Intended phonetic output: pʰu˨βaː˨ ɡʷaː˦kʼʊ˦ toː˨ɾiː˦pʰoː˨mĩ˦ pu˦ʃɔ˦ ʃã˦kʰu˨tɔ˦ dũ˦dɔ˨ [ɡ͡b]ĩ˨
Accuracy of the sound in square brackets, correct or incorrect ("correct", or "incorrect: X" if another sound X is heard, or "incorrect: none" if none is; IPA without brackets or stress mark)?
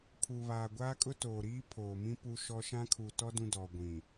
incorrect: ɡʷ